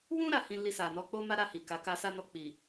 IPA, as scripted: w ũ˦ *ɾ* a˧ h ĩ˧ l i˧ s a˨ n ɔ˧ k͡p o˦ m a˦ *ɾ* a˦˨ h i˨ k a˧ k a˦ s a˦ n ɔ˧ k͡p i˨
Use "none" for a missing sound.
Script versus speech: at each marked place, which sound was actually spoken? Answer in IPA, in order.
ɾ, ɾ

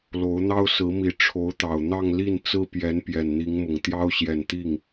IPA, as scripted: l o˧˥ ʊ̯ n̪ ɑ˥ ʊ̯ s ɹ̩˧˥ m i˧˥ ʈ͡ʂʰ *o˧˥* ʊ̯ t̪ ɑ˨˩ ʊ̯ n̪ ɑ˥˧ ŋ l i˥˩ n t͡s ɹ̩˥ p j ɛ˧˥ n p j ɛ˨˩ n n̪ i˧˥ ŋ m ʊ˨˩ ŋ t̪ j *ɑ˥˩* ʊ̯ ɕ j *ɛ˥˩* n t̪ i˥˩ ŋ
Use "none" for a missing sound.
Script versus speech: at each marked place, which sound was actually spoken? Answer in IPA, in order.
o˧˥, ɑ˥, ɛ˨˩

